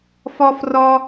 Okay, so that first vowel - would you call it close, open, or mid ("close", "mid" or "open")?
open